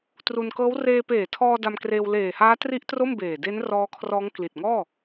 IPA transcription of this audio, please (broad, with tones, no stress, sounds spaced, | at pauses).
t r u˧ n k ɤː˦˥ w r eː˧ p eː˨˩ tʰ ɔː˧ d a˧ m k r eː˧ w l eː˨˩ h aː˦˥ t r i˦˥ ʔ t r o˥˩ m b eː˨˩ d e˦˥ n r ɔː˦˥ kʰ r ɔː˦˥ ŋ k l i˨˩ t̚ ŋ ɔː˥˩